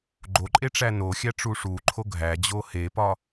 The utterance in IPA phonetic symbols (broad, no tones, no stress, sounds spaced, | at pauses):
ɡ͡ǃ o ǃʼ e ʈ͡ʂ æ n o xʲ æ ʈ͡ʂ u ʂ u ǃʰ o ɡʱ æ d͡ʑ o h e p ɒ